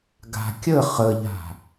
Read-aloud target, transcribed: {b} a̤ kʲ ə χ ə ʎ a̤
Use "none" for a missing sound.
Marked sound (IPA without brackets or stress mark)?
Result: ɡ